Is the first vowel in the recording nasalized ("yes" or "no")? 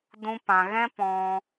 yes